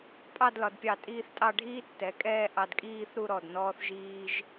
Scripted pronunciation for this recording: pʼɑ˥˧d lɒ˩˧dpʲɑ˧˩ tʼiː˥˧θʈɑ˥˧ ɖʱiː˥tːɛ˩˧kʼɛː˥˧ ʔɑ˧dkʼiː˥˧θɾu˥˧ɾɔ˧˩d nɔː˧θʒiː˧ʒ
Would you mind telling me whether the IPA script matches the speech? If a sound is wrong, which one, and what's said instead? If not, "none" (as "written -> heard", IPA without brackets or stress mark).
ʈ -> tʼ